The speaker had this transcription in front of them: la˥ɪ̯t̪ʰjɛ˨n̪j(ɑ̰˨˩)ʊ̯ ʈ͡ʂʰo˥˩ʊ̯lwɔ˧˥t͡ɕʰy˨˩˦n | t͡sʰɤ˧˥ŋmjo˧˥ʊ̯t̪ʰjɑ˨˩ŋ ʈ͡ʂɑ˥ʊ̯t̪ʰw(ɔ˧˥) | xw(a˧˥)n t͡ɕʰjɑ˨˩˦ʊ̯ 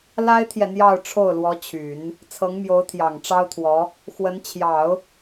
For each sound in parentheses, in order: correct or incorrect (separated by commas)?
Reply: incorrect, correct, incorrect